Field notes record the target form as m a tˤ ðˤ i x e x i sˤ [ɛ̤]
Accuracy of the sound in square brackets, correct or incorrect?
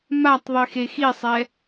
incorrect